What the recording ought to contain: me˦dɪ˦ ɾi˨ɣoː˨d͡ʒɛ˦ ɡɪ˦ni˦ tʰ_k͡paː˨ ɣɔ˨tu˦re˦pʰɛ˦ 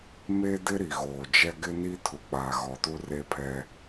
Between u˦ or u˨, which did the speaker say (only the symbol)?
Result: u˨